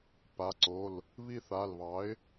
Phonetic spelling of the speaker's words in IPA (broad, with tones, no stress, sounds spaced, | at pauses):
p a˩˧˩ ǀ o˩˧˩ l | β i˦˨ θ a˩˧˩ l β ɑ˩˥ ɪ̯